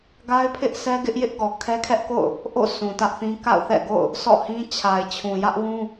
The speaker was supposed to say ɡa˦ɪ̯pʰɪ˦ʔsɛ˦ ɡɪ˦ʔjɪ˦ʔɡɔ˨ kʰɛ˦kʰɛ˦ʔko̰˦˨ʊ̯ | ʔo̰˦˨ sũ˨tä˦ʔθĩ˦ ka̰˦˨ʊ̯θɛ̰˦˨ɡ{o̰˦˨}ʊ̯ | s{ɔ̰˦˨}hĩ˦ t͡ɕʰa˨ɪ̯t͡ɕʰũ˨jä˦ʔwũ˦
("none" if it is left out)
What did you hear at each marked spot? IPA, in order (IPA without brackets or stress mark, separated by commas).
o̰˦˨, ɔ̰˦˨